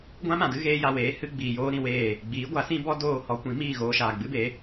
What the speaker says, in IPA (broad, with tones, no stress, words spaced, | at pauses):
ɡʷã˦mã˨dɨ˦ ɣeː˧ja˨ weː˨˦hɨ˧ ɡ͡biː˨joː˧ɾĩ˨weː˦˨ | ɡ͡biː˨˦ɡʷa˨˦sĩ˦bɔ˦ doː˦˨ hɔ˧kʷĩ˨˦ miː˦˨ɣoː˧ʃaː˨ ɡ͡bɨ˦be˨˦